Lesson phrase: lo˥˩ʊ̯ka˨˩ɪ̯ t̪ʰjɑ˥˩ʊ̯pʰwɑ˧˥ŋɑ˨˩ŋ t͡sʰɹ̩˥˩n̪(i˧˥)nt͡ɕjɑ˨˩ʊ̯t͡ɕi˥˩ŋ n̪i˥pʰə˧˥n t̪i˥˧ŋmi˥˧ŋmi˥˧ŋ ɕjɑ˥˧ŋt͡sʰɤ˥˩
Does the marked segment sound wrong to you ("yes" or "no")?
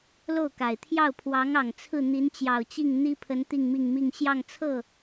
no